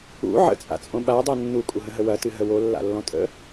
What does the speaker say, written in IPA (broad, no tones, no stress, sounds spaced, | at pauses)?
ṵ ʕ ə̰ t͡sʼ a̰ t͡sʼ õ ɓ a dˤ ɤ nː u kʼ u ɦ ə̃ ɦ ə w ɐ t ɨ ɦ ə w o lː a̰ lː ɔ̃ tʼ ə̰